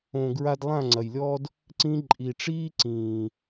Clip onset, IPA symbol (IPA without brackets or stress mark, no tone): õ